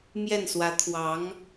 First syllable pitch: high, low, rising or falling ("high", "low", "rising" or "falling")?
falling